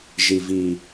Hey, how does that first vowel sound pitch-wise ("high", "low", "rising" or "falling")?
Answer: low